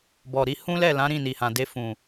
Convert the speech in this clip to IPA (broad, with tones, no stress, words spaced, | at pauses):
bɔ˨ɾi˧ hũ˦lɛ˦˨ lã˨˦ɾĩ˦˨ni˨hã˨ de˧fũ˨